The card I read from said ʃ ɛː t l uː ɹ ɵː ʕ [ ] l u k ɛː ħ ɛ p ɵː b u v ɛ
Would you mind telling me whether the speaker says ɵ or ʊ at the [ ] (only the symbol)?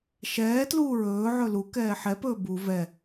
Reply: ɵ